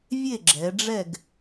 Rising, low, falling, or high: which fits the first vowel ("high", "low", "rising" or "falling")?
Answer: falling